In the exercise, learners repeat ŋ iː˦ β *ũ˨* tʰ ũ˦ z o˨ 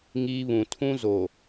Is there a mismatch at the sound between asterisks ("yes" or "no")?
no